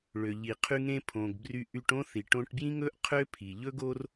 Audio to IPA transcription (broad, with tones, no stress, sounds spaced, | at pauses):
ɭ ø˩ ʎ i˩ qʰ y˧ ŋ ẽ˧ pʰ õ˩ ɡ b r y˧ ʔ y˧ ʈ õ˥ θ i˩ ʈ õ˧ ʈ b j ĩ˥ ŋ ɵ˥ ʔ qʰ ø˥ pʰ i˩ ʎ ɵ˥ ɡ o˥ r